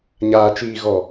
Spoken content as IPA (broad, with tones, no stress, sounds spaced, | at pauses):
ɲ aː˨ t͡ʃ iː˨ ɣ ɔ˨